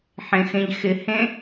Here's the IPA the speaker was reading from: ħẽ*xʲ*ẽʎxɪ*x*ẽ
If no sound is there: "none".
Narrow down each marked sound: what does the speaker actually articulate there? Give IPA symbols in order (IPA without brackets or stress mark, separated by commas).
x, h